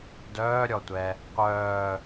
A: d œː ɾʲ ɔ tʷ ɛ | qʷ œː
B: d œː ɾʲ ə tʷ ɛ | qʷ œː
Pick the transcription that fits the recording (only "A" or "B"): A